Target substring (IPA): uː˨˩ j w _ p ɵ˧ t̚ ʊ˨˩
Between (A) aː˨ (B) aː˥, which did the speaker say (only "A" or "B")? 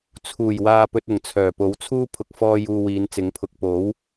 A